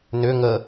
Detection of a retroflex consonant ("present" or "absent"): absent